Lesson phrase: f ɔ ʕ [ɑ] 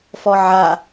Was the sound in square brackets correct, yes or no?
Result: no